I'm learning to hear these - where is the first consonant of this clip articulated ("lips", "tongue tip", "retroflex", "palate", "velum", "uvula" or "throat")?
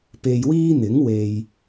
lips